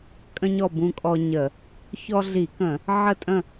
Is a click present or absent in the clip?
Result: absent